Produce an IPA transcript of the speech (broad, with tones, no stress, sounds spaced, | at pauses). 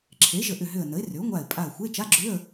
ǁʰ e˩˥ ʒ ə˧˩ ʔ ʏ˧˩ ɦ ʏ˧˩ ə̯ n ə˩˥ ɪ̯ r ʏ˩˥ ʊ̯ ŋʷ a˧˩ ɪ̯ pʼ a˧˩ ə̯ xʷ e˧˥˧ t͡ʃ a˧˥˧ ɡ͡ǁ ʏ˧˥˧ ə̯